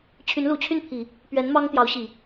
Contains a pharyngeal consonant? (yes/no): no